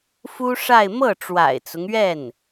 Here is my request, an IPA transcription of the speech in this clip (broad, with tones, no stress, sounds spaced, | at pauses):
f u˥ ʂ a˥˧ ɪ̯ m ɤ˥˩ ʈ͡ʂ w a̰˨˩ ɪ̯ t͡s ʊ˦ ŋ ɥ ɛ˥˩ n